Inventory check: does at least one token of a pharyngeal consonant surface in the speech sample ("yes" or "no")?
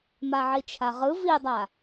yes